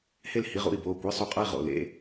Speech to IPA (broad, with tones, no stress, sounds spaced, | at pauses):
h e˥˨ l h i˧˥˧ ʁ ṵ˥˨ i̯ b oː˧˩ kʷ e˧˥˧ sˤ u˧˩ qʼ ɐ˥˨ i̯ ʁ o̰˧˩ l ḛ˧˥˧